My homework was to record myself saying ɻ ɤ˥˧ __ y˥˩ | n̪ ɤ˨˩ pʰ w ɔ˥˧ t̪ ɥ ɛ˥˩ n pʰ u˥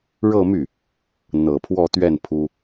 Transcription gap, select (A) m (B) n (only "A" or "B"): A